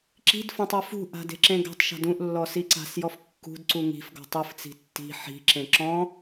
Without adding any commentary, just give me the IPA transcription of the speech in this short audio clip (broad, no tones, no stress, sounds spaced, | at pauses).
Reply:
ǁ i̤ d f ɔ̃ tˤ ɤ f ṳ ʔ a̤ d e̤ ǁ ẽ ɡ a̤ tˤ ʃ a̤ d ũ ʔ lː ɔ s i ǀ a̤ s j ɔ f kː ṳ d ǀ u ŋ i̤ f ɡ ɔ̤ tˤ ɯ f t͡s i̤ tː i̤ ħ i̤ ǁ ẽ ǁ ɔ̃